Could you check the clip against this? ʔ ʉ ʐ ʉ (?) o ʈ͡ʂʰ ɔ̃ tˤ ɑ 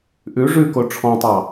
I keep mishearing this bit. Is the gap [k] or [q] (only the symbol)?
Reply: k